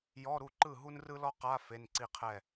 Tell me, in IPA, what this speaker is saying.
j ɔ˧˥˧ ɾ u˥˩ ǃ ɯ˥˩ ɦ u˥ n r ɯ˥ l ɔ˥ q a˧˥˧ f e˧˥˧ n ǀ i˥˧ qʰ ɛ˥˩

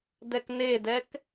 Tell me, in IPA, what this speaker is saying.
d ɛ k n e d ɛ k

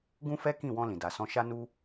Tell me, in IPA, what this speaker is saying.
ɡ ũ˦ f ɛ˦ k ĩ˦˨ w ɔ̃˧ l ĩ˨ d a˨ s ɔ̃˧ ʃ a˦ n u˦

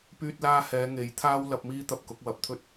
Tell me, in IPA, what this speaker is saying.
p yː˧ t̚ l aː˧ h ɛː˨˧ ŋ e˨˥ j t̪ʰ aː˥ w l ɐ˨˥ p̚ m iː˥ t̪ ɐ˧ p̚ k ʊ˨˥ k̚ w ɐ˨˥ p̚ t̪ʰ ɵ˥ t̚

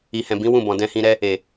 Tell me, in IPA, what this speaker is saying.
i˨ h ɛ̃˨ b ĩ˨˦ w ũ˦˨ b ɔ̃˨ d ɛ̃˧ h ĩ˧ ɾ ɛ˦ | e˨

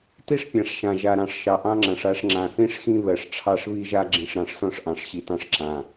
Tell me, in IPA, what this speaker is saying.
t i˦ ʂ pʲ ã˨ ʂ ʃ ã˨ ʒ a˨ ɾ ɑ̃˨ ʂ ʃ ɑ˨ ʔ ɑ̃˦ ŋ͡ǁ ã˨ ʂ a˦ ʂ ŋ͡ǁ ã˨ θ ĩ˦ ʂ x ĩ˦ β ɜ˨ ʂ ʈ͡ʂʰ ɑ˦˨ ʂ β i˦ ʒ a˦ ɡ͡ǁ ĩ˨ ʂ ɾ ɑ̃˨ ʂ s ɔ̃˦ ʂ ʔ ɑ̃˨ ʂ ɕ i˨ t ɑ̃˦ ʂ ǁ ã˨

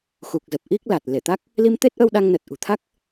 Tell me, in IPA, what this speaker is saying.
x u˨˩ k̚ z ə˨˩ p̚ ʔ i˦˥ k̚ l a˨˩ t̚ l e˧˩ t̪ a˦˥ k̚ | l i˧ m t̪ e˦˥ t̚ ʔ ə˧ w ɗ a˧ ŋ n ə˨˩ t̚ ʔ ṳ˨˩ t̪ʰ a˦˥ k̚

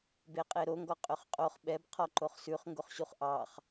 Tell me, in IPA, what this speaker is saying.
b e qʼ e ɾ o ŋ ɡ ɔ qʼ ø χ qʼ o χ ɓ ɛ b qʰ ɔ ǃ o χ s ʉ χ ŋ ɡ o χ ɕ u χ ʔ ɑ χ

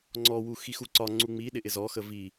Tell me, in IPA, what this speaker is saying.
ŋ͡ǀ ɔ w u x i x u ǀ ɒ ŋ͡ǀ u ŋ͡m i ɗ ɪ ʔ ɪ z ɔ x ə v i

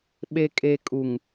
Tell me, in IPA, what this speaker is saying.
ɓ e˨ kʼ e˨ kʼ u˨ ŋ

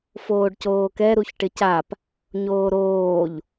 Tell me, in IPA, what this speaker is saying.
f oː ɖ c oː k ɛ ɾ u ç ʈ ɪ c a p | ɲ oː ɾ oː ʎ

